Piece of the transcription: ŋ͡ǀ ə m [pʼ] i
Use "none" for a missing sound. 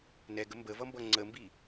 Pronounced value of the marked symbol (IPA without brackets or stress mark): b